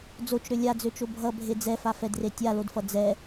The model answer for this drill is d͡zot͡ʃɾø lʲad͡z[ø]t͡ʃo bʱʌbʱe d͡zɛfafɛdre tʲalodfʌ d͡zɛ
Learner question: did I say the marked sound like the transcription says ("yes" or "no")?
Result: yes